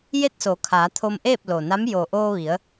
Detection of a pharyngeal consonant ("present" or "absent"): absent